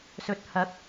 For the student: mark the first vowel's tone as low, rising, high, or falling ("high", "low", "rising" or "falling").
rising